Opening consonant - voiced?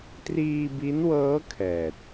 no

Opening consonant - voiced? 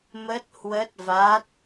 yes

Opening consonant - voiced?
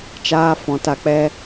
no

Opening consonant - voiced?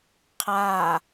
no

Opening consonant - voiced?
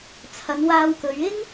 no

